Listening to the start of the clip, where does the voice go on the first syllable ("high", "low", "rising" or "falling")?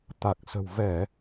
low